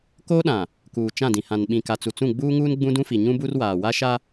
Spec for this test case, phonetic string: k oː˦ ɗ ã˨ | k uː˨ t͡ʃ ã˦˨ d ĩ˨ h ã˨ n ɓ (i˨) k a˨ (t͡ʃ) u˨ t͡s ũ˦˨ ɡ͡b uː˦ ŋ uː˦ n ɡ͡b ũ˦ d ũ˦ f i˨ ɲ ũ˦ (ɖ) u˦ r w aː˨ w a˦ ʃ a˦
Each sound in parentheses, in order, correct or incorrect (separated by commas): incorrect, incorrect, incorrect